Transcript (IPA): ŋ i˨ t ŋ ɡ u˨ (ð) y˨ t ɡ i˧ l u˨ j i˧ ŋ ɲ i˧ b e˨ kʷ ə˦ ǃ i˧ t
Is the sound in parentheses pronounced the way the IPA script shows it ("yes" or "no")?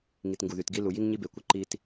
yes